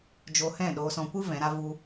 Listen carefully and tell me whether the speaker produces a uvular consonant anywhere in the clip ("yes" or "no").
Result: no